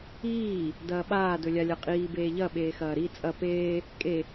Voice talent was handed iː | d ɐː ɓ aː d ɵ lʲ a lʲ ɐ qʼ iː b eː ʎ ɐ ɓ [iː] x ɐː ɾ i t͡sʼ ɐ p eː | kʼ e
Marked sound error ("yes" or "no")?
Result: yes